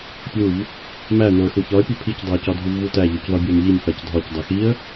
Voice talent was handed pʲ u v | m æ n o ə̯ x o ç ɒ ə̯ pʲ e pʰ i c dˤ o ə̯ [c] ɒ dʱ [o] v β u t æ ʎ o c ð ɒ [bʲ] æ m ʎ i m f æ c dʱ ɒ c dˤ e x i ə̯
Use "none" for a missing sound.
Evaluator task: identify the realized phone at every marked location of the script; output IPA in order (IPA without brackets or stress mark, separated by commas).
c, u, bʲ